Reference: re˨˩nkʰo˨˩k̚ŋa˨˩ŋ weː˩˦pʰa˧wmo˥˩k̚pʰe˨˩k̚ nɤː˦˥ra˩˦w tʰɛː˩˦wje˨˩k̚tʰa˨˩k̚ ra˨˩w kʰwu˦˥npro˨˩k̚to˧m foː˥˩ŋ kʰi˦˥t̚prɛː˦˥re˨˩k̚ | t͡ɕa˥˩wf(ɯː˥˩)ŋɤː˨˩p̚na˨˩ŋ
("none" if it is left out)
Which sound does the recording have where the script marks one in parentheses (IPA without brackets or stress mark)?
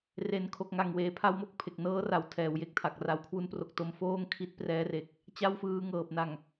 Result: ɯː˧